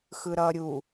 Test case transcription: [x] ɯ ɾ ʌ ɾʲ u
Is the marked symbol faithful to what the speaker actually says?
yes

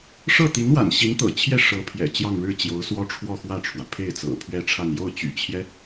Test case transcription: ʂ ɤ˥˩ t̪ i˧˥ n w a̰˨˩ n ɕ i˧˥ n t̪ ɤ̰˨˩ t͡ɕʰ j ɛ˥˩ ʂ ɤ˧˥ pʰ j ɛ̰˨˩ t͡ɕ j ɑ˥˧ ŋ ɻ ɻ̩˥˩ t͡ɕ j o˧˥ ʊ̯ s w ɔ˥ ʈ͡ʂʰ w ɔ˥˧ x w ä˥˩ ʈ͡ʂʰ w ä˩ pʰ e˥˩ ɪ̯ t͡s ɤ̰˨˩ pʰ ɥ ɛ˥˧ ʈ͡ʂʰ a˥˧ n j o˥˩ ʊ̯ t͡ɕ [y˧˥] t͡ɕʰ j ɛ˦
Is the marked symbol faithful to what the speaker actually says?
no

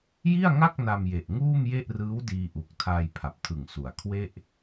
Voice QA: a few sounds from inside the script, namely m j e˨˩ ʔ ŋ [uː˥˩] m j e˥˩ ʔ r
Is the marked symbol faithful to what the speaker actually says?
yes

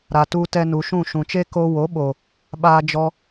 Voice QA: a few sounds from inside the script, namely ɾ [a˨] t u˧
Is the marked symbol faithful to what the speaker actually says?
yes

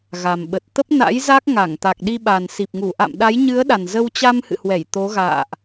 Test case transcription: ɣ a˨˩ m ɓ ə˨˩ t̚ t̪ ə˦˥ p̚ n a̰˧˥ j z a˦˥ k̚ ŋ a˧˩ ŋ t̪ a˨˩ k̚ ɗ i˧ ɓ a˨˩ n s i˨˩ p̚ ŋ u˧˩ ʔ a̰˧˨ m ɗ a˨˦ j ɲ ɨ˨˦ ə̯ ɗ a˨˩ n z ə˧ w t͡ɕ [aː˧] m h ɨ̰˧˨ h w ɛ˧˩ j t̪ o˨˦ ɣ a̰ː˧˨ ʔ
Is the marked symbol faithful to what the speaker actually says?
no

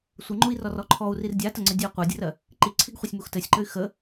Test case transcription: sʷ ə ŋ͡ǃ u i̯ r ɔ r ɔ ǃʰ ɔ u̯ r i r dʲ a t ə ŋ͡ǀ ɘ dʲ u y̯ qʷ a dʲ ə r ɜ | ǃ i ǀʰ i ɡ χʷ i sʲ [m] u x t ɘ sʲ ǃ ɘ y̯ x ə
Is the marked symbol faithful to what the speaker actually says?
yes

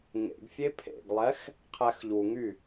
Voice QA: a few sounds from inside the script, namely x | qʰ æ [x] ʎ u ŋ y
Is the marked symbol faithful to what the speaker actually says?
yes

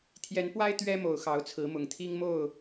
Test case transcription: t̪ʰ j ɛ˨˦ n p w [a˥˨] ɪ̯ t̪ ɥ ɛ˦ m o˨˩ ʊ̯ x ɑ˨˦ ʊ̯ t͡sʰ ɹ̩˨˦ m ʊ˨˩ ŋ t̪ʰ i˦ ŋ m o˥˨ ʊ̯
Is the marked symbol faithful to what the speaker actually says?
no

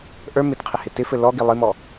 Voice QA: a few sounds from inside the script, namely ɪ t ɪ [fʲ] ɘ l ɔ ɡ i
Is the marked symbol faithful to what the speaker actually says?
no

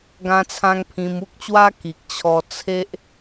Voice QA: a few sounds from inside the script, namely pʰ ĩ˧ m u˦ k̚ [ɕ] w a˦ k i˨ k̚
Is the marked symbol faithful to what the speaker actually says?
no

